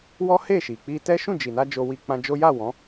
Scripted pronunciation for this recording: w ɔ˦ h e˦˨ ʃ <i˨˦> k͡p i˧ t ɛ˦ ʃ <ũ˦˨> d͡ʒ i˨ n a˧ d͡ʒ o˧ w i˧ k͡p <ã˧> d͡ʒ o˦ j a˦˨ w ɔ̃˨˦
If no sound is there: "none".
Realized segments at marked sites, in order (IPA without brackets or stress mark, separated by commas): i˨, ũ˦˨, ã˧